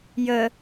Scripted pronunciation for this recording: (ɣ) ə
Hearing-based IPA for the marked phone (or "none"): j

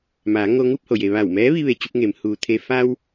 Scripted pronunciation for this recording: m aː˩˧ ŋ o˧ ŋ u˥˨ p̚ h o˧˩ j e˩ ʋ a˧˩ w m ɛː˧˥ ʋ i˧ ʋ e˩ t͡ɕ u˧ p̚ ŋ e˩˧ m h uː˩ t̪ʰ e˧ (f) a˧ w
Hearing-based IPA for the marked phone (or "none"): f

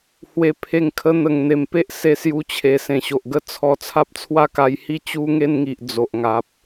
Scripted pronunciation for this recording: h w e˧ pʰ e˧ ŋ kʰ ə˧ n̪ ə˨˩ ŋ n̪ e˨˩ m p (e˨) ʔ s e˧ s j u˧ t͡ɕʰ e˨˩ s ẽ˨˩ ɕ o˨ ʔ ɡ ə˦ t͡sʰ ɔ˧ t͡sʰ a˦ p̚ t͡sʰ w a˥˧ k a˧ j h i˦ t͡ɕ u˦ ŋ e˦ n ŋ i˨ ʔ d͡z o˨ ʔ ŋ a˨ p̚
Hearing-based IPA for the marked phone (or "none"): e˦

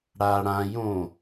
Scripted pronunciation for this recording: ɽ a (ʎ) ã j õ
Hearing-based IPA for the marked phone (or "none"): ɽ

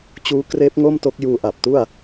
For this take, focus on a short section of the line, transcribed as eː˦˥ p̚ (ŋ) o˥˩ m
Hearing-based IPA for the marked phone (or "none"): ŋ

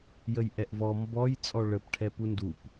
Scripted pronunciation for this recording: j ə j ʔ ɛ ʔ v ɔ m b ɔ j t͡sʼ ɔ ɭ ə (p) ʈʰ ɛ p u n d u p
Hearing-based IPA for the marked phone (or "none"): p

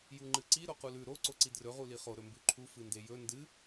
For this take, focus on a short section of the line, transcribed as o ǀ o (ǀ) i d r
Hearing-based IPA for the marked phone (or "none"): ǀ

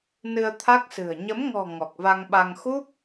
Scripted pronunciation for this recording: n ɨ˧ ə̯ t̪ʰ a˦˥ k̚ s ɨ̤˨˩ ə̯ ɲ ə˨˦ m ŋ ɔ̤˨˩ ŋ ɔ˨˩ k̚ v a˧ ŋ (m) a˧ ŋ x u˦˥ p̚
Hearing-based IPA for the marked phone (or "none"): ɓ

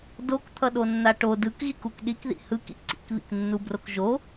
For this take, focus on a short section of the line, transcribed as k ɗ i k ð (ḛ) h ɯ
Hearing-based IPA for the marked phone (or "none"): ḭ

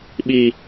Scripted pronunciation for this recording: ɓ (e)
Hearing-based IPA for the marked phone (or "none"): i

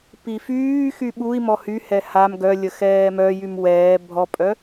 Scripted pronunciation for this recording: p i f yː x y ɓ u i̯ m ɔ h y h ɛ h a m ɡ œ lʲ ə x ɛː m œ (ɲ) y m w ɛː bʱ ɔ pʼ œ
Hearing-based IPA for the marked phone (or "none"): j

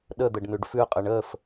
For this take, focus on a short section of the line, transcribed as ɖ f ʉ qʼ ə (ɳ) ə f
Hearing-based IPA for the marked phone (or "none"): ɳ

